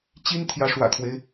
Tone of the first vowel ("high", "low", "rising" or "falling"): high